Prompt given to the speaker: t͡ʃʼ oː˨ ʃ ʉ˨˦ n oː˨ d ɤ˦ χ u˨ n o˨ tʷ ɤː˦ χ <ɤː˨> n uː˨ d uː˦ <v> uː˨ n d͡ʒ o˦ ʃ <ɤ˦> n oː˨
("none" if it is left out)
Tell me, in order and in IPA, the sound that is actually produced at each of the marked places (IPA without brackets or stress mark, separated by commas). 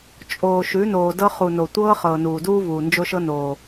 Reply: ɤː˨, v, ɤ˦